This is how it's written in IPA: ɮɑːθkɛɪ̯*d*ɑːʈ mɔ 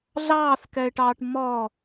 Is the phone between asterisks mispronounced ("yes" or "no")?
yes